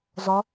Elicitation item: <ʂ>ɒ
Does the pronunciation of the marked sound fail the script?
yes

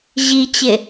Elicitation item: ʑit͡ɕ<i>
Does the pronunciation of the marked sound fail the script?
yes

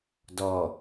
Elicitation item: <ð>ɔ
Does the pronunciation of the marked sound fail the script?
yes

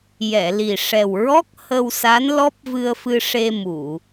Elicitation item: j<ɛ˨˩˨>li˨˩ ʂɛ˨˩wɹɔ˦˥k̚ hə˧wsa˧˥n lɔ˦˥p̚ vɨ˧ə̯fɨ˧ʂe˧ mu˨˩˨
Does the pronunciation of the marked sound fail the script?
no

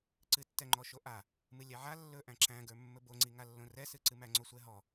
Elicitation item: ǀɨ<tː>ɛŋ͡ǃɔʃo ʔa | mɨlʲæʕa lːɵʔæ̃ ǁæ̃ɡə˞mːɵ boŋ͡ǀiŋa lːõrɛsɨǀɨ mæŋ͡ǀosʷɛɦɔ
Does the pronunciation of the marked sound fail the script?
no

